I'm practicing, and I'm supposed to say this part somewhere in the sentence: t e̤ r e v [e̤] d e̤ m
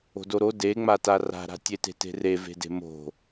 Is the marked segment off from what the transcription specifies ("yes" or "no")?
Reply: no